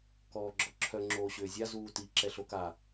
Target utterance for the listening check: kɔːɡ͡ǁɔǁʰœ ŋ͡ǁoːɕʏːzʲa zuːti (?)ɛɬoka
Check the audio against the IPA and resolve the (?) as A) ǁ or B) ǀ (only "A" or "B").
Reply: A